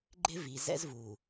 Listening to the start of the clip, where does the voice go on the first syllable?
high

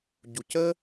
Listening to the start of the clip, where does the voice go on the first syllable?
low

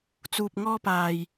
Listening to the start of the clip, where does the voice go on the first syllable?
low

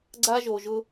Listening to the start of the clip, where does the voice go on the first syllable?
high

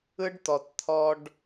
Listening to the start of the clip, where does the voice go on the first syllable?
high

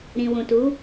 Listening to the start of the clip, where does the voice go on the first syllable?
low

